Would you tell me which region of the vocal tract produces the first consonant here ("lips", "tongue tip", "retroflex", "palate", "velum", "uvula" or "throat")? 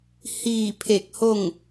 throat